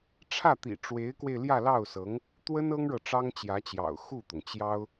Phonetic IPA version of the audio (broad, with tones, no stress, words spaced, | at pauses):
ʈ͡ʂʰä˥˩t̪ḭ˨˩ʈ͡ʂwe˧˥ɪ̯kwe˧ɪ̯ ljä˥˧lɑ˥˩ʊ̯sɤ˧˥ŋ | t̪wə˥n ɤ˥ŋɻɤ˨ ʈ͡ʂɑ˥ŋt͡ɕjä˧˥t͡ɕjɑ̰˨˩ʊ̯ xu˥˩t̪ʊ˩ŋt͡ɕjɑ˥ʊ̯